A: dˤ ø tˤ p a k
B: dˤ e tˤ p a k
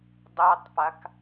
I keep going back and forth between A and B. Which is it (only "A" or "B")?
B